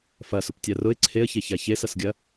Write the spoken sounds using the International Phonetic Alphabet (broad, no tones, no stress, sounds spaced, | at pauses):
f ɐ s ʊ p tʲ a r ʊ ɪ̯ ǀʰ e ə̯ ç e ç a ç e s ɐ s ɡʲ ɐ